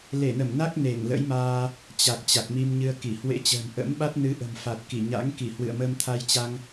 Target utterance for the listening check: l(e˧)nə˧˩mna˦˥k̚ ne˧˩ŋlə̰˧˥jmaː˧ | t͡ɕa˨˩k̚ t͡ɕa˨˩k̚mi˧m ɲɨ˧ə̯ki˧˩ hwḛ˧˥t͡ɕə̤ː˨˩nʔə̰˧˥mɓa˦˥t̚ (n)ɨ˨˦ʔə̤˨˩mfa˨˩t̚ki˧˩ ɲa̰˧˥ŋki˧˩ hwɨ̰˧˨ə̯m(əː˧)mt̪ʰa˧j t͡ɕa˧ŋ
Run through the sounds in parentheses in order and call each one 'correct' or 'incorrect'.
incorrect, correct, correct

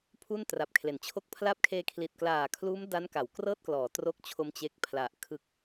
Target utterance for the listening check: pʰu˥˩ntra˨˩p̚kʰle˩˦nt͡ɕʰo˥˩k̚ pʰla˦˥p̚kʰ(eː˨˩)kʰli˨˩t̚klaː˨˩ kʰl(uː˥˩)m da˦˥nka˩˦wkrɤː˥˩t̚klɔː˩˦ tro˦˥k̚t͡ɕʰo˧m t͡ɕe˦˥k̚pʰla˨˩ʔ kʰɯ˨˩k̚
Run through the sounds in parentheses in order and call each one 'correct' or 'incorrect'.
incorrect, incorrect

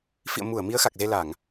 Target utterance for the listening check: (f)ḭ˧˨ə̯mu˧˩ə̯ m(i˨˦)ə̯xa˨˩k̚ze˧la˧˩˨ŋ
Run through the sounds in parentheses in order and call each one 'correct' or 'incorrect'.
correct, correct

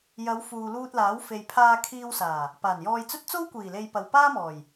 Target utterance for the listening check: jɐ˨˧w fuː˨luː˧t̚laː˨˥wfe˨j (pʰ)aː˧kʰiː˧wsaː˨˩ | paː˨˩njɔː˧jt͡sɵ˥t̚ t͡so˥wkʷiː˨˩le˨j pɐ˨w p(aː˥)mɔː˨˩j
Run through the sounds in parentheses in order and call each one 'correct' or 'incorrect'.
correct, correct

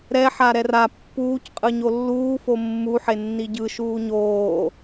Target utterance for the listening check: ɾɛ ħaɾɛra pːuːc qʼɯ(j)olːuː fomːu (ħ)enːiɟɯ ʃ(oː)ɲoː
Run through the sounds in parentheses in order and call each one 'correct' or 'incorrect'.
incorrect, correct, incorrect

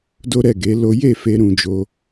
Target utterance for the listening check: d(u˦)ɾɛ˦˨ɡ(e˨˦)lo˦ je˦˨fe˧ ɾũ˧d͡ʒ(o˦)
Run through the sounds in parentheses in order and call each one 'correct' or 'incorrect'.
incorrect, correct, incorrect

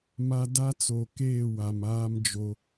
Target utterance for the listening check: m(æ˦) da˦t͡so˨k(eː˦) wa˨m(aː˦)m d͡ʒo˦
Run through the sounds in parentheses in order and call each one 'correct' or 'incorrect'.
incorrect, incorrect, correct

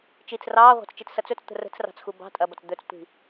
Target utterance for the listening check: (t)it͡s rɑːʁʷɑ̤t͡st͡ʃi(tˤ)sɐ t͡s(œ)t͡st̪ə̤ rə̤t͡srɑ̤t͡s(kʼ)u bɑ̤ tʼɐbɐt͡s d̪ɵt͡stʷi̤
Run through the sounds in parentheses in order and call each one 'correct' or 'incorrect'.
incorrect, incorrect, incorrect, incorrect

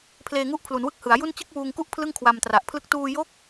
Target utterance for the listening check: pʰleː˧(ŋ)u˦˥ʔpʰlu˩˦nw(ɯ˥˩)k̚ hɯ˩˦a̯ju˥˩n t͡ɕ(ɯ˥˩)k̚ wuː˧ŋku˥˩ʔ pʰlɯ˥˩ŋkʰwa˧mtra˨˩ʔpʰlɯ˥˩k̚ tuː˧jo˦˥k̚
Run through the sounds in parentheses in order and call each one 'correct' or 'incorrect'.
correct, incorrect, correct

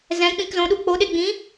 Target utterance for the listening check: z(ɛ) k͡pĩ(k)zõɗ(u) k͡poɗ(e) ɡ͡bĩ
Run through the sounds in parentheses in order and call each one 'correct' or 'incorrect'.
incorrect, correct, correct, correct

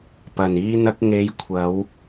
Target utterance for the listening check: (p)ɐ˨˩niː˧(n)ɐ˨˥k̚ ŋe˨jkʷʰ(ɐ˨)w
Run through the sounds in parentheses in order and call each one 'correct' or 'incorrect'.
correct, correct, incorrect

